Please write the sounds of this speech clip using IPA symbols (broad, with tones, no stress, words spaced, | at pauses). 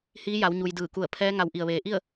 hiː˧˥ja˩˧wɲu˩j dɯː˧˩ku˧˩ə̯ pʰɛː˧˥ ŋa˧˩w ʔi˩ə̯ʋeː˩ ʔi˥˨ə̯